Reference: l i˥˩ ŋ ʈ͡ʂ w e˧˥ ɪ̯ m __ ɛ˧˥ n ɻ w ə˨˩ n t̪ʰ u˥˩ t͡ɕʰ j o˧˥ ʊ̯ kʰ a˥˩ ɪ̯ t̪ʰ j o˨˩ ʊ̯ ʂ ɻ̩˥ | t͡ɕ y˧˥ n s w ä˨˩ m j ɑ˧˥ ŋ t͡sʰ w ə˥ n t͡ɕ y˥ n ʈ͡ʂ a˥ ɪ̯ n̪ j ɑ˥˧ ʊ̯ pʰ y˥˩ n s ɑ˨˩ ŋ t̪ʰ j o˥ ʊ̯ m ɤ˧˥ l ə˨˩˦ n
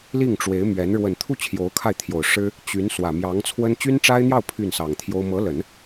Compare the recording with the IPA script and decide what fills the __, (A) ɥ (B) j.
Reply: A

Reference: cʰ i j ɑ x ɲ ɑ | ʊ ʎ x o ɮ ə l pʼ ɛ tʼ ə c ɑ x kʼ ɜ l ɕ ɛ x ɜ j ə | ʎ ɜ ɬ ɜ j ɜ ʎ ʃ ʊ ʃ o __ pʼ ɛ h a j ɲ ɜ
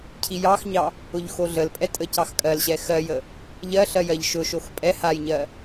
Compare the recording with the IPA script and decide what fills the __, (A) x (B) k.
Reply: A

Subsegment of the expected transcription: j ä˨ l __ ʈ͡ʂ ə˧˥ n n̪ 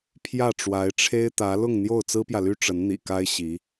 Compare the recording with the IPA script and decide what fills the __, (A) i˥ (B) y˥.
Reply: B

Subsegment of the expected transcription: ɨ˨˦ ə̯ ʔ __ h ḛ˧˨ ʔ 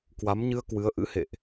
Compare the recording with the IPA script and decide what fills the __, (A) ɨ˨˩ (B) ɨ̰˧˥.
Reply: B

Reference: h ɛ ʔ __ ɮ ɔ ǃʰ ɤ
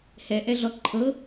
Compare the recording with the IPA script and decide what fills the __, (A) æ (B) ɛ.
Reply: B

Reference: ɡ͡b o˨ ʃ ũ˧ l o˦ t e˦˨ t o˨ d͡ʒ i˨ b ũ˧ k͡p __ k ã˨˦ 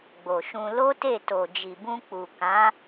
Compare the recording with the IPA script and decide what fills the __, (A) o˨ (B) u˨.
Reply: B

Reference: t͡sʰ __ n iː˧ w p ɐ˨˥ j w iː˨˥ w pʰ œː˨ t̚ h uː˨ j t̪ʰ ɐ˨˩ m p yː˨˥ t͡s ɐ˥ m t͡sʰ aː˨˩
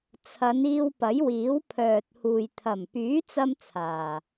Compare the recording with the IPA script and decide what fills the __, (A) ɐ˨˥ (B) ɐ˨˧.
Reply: B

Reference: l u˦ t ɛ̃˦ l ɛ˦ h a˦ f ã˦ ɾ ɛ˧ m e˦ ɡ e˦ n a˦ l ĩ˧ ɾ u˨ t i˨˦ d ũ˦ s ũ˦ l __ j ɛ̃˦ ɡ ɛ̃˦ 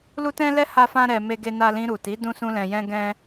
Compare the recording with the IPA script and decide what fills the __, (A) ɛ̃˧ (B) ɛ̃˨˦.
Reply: A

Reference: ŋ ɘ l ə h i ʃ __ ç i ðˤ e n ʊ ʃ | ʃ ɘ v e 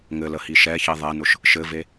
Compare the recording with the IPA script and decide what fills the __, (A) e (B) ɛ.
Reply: B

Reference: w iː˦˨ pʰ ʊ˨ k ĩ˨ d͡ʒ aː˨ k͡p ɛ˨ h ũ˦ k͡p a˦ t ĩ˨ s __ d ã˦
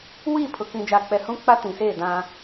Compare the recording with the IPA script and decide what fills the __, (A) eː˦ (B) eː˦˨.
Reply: B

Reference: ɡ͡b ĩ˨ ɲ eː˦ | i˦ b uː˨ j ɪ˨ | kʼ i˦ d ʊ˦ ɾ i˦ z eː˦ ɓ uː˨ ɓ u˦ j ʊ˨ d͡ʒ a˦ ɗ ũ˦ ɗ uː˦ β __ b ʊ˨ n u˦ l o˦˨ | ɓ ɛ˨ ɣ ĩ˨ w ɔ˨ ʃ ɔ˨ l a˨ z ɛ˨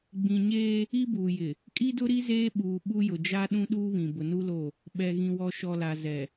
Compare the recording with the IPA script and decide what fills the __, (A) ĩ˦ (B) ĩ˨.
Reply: B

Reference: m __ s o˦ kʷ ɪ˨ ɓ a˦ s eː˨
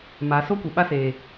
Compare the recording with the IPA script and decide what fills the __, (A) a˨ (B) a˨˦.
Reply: B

